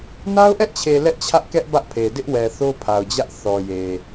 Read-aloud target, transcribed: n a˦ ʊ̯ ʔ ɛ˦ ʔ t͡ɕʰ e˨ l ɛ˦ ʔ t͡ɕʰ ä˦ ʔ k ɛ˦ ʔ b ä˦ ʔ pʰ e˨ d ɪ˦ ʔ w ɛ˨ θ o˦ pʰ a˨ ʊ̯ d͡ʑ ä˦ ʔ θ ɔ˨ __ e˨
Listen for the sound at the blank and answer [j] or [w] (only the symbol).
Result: j